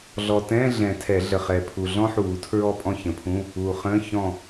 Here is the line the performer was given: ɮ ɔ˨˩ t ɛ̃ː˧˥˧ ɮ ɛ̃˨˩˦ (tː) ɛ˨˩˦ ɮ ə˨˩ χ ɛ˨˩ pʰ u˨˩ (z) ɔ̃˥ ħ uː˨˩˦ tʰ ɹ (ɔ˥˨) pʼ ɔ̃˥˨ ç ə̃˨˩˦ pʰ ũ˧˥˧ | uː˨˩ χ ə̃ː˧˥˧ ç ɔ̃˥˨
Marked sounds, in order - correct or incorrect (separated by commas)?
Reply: incorrect, incorrect, correct